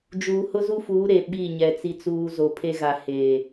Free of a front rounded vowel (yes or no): yes